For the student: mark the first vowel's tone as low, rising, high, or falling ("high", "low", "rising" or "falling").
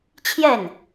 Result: falling